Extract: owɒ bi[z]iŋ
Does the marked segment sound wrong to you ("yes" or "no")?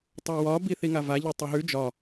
yes